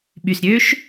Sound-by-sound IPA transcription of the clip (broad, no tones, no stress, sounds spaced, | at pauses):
ɓ y s ɾʲ ø ʃ